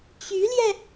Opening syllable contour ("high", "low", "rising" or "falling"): rising